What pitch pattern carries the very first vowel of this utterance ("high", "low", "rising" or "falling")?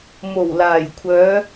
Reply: low